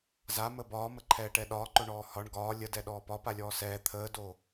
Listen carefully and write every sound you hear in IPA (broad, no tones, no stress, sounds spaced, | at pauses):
z a m ə b ɒː m ə ǃʰ ɛː ʈ ɛ ɗ ɒː ǃ o ɳ ɔː h ɒ ɳ ɡ ɒː lʲ ə d ɛ ɗ ɔː p ɒ p a lʲ ɔː s ɛː t̪ʰ əː d oː